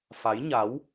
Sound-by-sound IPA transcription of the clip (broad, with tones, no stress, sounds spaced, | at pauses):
f a˨˦ j ɲ a˨˦ w